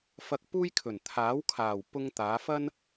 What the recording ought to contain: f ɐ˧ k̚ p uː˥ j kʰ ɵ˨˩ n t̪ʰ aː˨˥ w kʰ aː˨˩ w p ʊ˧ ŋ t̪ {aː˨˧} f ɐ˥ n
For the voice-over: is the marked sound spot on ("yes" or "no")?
yes